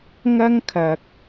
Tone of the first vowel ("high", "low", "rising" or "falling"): high